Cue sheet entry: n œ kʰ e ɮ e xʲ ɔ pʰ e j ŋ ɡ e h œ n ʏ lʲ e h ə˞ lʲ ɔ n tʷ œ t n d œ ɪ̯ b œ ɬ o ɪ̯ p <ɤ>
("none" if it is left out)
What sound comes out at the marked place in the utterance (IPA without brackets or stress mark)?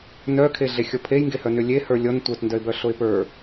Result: ə˞